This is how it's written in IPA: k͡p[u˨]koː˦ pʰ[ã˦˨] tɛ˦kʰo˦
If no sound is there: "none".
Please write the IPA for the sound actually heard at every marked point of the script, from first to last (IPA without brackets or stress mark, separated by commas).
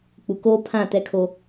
u˨, ã˦˨